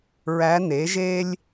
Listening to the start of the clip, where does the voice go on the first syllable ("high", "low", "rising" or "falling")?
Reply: rising